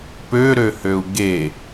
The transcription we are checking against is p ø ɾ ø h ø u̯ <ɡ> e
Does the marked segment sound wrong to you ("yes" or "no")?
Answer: no